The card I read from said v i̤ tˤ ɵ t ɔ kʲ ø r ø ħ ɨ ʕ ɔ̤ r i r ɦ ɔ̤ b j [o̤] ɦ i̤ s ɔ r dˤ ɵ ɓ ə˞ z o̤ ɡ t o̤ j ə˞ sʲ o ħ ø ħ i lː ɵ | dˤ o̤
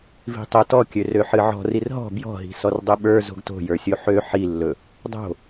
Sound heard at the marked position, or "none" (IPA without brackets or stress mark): ɔ̤